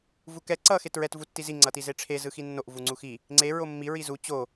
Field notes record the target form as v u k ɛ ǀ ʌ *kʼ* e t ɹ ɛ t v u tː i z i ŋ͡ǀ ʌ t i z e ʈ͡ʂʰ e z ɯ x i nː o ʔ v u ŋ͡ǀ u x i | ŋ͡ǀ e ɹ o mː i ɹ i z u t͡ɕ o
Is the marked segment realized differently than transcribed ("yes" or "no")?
yes